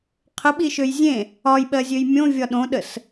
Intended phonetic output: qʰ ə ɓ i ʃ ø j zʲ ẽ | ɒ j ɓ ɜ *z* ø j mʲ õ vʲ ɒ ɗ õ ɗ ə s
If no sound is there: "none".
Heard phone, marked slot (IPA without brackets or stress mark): zʲ